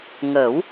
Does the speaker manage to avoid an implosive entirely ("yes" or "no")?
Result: yes